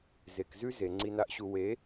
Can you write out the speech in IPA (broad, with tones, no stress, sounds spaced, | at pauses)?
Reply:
z e˨ k z ʉ˦ z e˨ ŋ͡ǀ i˨ n a˨ ʔ ɕ u˨ w e˨˦